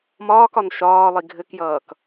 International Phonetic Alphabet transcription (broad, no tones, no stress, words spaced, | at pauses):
mɒːkɒn ʃɒːlˠi ɡʱɘkjʌːk